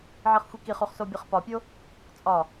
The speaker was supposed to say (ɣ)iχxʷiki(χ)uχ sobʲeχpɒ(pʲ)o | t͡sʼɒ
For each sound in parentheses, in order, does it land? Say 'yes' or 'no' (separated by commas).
no, yes, yes